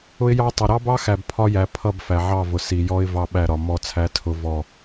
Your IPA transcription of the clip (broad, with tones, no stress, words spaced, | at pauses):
ʊ˦ɪ̯jɑ˦tˤɪ˨ ɾɑ˦bɑ˦xæ˨b pʰɒ˦jæ˨ pʰʌ˦˨b fæ˨ʕɑ˦˨vʊ˨ si˨jɔ˦ɪ̯ vɑ˦ɓæ˦˨ɾɒ˨ mɔ˦t͡sʰæ˦tʰʊ˦ vɔ˦˨